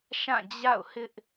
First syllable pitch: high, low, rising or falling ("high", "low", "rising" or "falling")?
falling